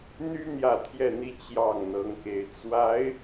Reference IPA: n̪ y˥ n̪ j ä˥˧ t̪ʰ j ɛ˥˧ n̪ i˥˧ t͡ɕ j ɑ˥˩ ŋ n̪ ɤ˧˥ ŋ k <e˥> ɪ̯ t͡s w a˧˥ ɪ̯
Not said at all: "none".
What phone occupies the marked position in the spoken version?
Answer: e˧˥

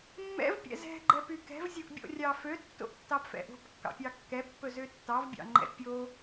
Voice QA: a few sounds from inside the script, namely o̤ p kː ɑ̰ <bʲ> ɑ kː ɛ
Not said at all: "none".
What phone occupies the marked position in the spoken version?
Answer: pʲ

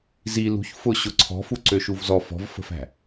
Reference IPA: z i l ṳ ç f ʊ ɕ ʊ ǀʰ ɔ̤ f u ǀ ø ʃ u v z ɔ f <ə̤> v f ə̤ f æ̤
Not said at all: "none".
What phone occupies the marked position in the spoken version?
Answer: ɔ̤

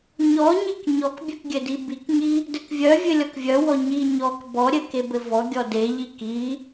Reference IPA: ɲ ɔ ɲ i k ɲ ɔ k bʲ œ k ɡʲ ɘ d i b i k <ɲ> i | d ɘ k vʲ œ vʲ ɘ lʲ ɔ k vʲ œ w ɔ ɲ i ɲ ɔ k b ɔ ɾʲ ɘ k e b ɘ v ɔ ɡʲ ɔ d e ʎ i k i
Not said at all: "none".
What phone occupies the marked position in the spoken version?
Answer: ɲ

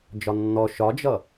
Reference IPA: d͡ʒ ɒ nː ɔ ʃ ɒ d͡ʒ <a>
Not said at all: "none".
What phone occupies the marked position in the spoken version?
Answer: ʌ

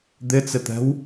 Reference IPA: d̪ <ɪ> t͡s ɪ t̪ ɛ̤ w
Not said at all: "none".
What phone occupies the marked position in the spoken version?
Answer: ɪ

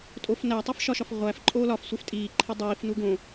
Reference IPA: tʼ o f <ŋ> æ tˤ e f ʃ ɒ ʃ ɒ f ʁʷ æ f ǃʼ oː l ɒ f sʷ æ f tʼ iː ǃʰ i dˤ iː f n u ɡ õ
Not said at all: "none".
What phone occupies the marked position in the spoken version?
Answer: n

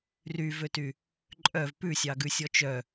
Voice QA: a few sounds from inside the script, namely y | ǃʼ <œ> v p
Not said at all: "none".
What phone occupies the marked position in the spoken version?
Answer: œ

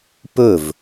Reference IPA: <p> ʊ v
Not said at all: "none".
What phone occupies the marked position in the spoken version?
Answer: p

